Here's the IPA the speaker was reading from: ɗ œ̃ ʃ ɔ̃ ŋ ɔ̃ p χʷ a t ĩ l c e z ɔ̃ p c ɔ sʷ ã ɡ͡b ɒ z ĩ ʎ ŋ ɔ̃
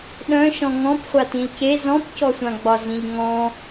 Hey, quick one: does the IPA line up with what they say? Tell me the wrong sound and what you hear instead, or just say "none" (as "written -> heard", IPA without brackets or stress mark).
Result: none